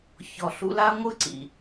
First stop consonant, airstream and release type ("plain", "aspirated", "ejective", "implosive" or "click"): click